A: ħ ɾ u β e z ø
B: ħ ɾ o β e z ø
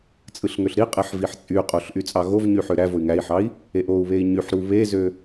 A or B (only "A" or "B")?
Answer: A